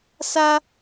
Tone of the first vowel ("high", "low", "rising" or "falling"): high